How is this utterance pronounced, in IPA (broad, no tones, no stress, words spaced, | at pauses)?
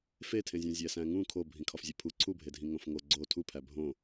fetʰẽzʲõ zʲæsæ̃ŋũ kʰo bʱĩkʰɒfzʲepʰu ǀʰubʱedʱĩ ŋõfŋo ɡ͡ǀo tʰupʰæ bʱõ